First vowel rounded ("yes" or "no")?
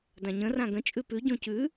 no